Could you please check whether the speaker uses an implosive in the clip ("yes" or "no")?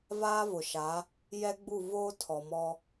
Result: no